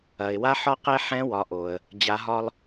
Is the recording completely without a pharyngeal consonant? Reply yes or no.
no